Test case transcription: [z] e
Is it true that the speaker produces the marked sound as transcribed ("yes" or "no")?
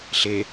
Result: no